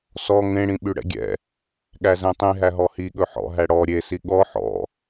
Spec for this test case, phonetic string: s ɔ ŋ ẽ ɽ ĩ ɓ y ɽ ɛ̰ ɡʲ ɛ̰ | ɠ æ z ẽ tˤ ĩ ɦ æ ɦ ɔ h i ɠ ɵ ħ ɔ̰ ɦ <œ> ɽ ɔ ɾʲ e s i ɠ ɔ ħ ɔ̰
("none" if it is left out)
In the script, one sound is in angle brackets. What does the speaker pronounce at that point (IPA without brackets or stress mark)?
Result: æ